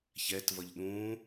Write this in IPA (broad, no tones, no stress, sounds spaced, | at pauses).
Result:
ç ɛ t v ʌ ʎ ɗ ũ